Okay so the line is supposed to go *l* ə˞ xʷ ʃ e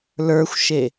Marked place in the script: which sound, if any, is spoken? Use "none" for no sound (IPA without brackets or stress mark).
l